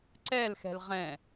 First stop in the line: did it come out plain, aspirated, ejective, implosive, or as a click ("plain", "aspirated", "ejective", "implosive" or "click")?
click